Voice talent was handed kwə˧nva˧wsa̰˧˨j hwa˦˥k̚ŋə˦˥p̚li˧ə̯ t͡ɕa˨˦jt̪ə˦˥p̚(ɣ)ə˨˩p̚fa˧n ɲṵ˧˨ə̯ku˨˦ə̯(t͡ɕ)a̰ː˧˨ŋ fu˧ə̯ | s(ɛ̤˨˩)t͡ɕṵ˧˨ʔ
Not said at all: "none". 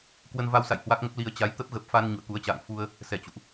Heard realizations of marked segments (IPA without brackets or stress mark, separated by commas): ɣ, t͡ɕ, ɛ˧˩